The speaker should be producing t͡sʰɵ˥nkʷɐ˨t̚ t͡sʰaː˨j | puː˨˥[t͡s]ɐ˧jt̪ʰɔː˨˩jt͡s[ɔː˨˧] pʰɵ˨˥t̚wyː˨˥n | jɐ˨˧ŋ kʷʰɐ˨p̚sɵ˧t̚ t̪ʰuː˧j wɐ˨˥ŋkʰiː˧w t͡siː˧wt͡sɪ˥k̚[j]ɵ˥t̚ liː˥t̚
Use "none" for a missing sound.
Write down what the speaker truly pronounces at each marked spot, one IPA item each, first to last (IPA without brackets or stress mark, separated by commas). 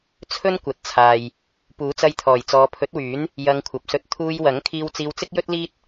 t͡s, ɔː˨˧, j